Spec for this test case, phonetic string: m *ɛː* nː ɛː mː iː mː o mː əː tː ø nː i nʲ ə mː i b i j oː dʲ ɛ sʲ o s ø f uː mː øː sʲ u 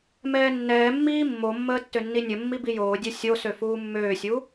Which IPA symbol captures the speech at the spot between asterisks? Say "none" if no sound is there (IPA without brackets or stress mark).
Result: ɛː